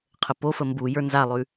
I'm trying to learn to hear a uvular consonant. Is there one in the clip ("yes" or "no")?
yes